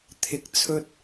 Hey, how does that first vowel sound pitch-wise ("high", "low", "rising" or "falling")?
rising